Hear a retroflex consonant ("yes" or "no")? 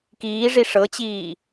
yes